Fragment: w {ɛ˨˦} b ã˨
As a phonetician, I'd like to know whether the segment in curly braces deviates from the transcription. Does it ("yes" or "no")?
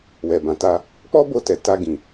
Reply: yes